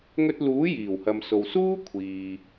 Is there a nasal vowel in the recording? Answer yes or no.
no